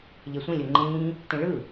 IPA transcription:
ʎ e sʷ ĩ lʲ o ŋ͡ǃ ĩː | t ĩ ɭ ɯ

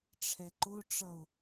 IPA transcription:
ʈ͡ʂʰ ɛ ǃ ʊ ʈ͡ʂ ʌ ʊ̯

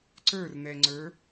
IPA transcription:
ǀ ə˞ r n̪ ɛ ŋ͡ǀ ə˞

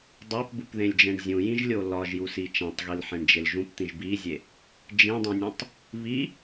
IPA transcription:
dˤ æ p b u p ð ẽ lʲ d͡ʒ ẽ ɳ zʲ ũ j ĩ ʒ lʲ o l ɒ ʒ j u s i t͡ʃ æ̃ tˤ ɣ i l ħ ẽ ɳ d͡ʒ e l ʒ ũ p t̪ ĩ ʒ b i zʲ e | d͡ʒ ĩ dˤ ũ nʲ ũ tˤ | β i

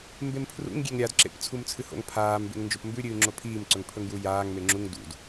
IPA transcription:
m b e m pʰ r ṵ ŋ ɡʲ e ŋ ɾʲ a d ǁ ḛ p t͡sʰ u m t͡sʰ ɨ h o̰ ŋ pʰ aː m b ḛ ŋ n d͡ʒ o p m b ʉ ɾʲ ɨː ŋ͡ǁ o pʰ iː m ǀ ɵ ŋ pʰ ɵ ŋ j u j aː ŋ m e ŋ͡ǁ u ŋ d ṵ d

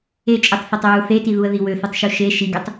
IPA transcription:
e t͡ʃʼ ɯ tˤ θ e tˤ ɹ u θ e t i ð u ə̯ ð i w ø θ u tˤ ʃ u ʃ e ʃ i ɡ ø tˤ

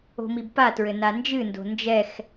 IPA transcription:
o̤ m i b p a t ɹ ɘ n a n d͡ʒ ɨ n d o̤ n d͡ʒ ɛ x

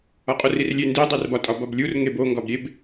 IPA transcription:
ɒ qʼ o r i r lʲ e n d i dˤ e r b ɒ tʼ ɒ b ɒ b lʲ u r ŋ e b o ŋ ɡ ɒ b ɾʲ e b

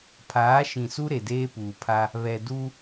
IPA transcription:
pʰ aː˨˦ ʃ ĩ˨ s u˦ ɾ e˨ d eː˦ p uː˨ pʰ a˦ | β ɛ˨ d u˦

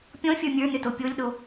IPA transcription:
pʲ ɔ̃ fʲ ə˞ mʲ ə˞ n ʏ t o pʲ o lʲ ɗ o

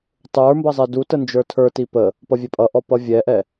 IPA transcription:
tˤ ə˞ m b ʌ zˤ ɛ d u t ə n d͡ʒ ə˞ tʰ ə˞ t i p ə | p ʌ vʲ ɛ pʼ ʌ ʔ ɔ p ʌ vʲ ɛ ʔ ɛ

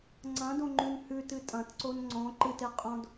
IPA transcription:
ŋ͡ǀ ɐ̃ d õ ŋ͡ǃ ʉ n h ʉ t ɨ tʼ ɐ̃ t ǀ o n ŋ͡ǀ õ ǃ ɨ t e qʼ õ d

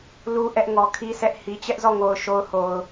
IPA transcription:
l u˨ ʔ ɛ˦ ʔ ŋ ɔ˨ kʰ i˦ sʰ ɛ˦ ʔ h i˨ t͡ɕ ɛ˦ ʔ z ɔ˦˨ ŋ o˨ ʊ̯ ʃ o˦ ʊ̯ h o˨ ʊ̯

